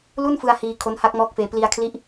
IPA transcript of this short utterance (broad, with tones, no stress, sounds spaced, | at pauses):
l u˥˩ n f ɯ˧ a̯ h iː˧ kʰ o˦˥ n h a˦˥ k̚ m ɔː˦˥ k̚ f eː˧ p l i˧ a̯ kʰ l i˦˥ ʔ